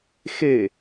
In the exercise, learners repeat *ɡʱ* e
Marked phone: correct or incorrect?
incorrect